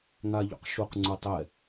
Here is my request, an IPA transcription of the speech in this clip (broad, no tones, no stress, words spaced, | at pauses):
ŋa ʎṵqʃuq ŋ͡ǀutˤɛ